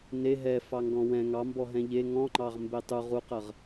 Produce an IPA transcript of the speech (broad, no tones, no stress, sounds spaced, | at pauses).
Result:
n e ɦ ɛ f ɑ ŋ ɡ ɔ̃ w ɛ̃ ŋ ɑ m b ɔ ɦ ɛ̃ ʎ e ŋ ɔ̃ ŋ͡ǃ ɑ ʁ m b e tˤ u ʁ u q ə ʁ